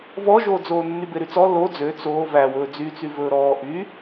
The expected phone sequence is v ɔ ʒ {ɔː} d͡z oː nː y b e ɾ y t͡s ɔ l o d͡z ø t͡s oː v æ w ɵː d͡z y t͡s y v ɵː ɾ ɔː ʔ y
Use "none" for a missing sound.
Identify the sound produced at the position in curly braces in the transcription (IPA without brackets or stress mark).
oː